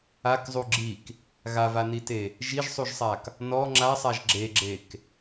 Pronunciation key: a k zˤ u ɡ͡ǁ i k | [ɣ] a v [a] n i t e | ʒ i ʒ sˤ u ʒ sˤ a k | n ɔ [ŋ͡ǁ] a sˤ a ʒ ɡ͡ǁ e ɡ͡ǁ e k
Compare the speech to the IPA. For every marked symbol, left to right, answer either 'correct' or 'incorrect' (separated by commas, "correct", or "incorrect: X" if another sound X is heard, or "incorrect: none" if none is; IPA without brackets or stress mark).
correct, correct, correct